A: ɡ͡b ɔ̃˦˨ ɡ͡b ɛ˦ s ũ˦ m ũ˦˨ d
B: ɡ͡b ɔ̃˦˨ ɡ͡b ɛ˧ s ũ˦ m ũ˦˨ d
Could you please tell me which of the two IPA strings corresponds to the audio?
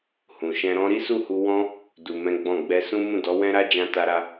B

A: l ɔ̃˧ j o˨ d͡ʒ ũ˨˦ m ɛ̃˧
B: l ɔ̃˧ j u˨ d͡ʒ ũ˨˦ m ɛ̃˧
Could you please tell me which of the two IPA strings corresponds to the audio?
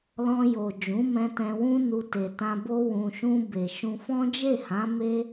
A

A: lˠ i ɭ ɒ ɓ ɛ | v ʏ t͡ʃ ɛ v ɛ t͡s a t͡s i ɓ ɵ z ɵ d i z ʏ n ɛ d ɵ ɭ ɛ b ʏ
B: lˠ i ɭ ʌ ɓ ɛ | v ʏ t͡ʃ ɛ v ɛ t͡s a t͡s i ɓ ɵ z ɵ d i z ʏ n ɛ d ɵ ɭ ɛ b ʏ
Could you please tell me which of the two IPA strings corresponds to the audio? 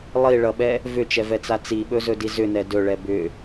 B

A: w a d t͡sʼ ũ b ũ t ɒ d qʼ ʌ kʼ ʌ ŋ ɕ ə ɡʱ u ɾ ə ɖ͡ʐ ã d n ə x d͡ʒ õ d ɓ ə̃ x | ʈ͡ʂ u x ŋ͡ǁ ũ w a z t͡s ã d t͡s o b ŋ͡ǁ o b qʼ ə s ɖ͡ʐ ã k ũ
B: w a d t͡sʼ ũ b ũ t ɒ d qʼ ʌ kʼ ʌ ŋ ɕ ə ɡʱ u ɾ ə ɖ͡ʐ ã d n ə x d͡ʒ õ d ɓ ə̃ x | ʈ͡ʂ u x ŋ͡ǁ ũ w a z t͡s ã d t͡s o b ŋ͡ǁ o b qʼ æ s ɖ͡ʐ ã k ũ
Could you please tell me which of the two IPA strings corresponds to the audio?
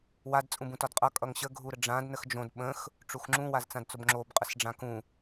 A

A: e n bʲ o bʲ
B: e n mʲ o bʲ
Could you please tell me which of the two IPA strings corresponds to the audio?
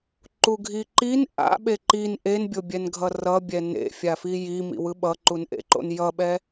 A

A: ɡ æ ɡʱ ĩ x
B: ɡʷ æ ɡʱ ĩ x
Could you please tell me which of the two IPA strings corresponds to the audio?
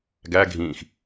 A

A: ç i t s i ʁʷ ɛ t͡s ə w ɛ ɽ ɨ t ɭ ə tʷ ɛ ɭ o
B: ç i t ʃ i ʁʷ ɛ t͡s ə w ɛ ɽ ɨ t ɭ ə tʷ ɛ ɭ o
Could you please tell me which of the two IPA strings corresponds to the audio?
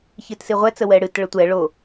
A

